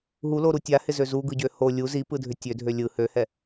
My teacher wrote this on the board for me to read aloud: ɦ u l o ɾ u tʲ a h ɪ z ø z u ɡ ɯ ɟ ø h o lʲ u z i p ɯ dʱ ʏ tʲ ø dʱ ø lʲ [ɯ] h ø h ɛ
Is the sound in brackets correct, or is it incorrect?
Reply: correct